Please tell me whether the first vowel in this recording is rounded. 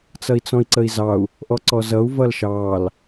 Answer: no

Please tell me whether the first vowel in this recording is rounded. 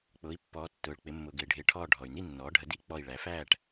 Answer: yes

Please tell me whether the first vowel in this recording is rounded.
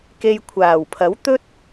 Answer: no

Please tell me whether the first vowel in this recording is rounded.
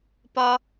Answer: yes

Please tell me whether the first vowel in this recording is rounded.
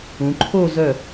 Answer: yes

